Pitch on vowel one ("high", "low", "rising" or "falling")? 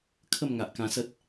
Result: falling